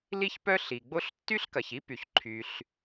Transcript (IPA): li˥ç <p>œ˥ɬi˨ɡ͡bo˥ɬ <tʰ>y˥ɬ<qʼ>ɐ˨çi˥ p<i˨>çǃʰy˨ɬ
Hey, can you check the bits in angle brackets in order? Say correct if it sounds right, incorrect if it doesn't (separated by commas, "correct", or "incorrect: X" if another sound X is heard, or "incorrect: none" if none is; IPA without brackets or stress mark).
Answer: correct, incorrect: tː, incorrect: k, incorrect: y˨